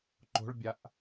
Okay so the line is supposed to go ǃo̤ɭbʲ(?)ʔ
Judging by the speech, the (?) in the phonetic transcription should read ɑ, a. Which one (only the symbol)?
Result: a